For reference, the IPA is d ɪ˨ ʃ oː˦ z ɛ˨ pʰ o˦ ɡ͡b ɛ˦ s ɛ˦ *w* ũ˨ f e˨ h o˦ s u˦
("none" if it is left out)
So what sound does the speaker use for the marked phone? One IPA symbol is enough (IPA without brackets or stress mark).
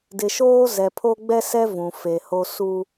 v